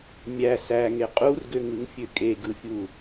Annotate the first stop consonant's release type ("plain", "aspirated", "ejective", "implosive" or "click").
ejective